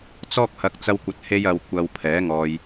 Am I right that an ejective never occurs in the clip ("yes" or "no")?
yes